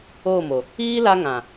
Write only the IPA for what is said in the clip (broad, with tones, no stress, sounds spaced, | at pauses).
oː˦˨ m o˨ | iː˦ l a˦ ŋ ã˨